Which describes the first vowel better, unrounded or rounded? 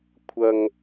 unrounded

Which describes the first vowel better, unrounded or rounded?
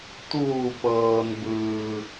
rounded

